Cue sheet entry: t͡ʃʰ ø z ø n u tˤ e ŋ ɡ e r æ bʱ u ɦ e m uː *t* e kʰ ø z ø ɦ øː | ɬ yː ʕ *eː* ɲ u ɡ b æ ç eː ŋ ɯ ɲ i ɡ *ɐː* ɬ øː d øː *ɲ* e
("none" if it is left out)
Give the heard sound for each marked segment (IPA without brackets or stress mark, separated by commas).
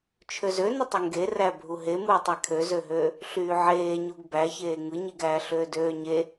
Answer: tˤ, eː, æː, ɲ